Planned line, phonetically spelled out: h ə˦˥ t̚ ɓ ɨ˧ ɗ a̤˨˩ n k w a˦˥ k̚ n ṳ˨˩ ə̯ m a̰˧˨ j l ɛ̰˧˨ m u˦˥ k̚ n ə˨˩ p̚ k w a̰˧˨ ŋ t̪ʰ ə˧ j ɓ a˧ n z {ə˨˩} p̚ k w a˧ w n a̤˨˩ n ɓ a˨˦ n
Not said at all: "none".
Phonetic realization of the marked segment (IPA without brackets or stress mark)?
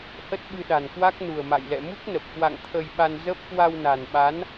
ə˦˥